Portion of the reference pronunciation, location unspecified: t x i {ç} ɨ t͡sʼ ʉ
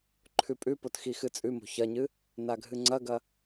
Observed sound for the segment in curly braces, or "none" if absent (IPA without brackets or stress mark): x